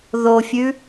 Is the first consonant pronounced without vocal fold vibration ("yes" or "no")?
no